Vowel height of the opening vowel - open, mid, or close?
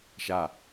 open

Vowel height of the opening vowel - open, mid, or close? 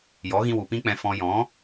mid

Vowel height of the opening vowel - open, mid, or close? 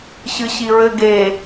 close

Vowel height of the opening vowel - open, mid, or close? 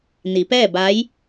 close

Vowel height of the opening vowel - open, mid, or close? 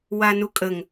open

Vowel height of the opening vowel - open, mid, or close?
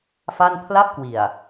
open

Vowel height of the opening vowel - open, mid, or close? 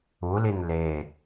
close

